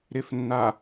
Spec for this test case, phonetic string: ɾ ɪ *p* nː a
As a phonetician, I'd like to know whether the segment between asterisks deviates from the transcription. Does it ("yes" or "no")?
yes